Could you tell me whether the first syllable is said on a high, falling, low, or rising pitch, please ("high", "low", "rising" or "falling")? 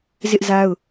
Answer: high